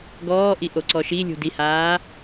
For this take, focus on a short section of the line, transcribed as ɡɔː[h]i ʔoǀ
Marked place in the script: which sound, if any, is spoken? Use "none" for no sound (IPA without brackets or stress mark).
ʔ